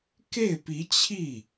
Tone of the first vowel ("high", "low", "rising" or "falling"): falling